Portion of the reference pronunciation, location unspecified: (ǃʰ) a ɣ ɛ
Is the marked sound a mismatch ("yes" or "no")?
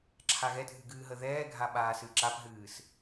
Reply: yes